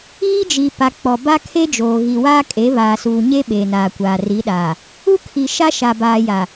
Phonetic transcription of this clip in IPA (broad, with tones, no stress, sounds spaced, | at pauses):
iː˦ d͡ʒ i˨ p a˨ k͡p ɔ˨ b a˦ kʰ e˦ d͡ʒ oː˨ ɣ i˨ w aː˦ kʼ e˨˦ β aː˨ s uː˨ ɲ e˦ ɓ eː˨ n aː˨ kʷ aː˨ r i˨˦ ɗ aː˨ | u˦ kʰ i˨ ʃ a˦ ʃ a˨ b aː˨ j a˨